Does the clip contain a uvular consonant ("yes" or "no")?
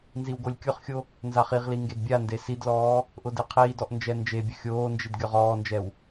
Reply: yes